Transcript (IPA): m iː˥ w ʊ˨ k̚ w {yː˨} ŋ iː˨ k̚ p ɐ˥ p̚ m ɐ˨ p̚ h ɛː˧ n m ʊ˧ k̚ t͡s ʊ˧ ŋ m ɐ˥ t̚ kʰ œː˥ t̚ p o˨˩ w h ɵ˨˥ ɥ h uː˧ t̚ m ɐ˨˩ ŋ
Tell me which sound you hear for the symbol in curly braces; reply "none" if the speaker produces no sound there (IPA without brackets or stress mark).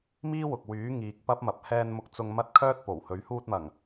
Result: yː˨˥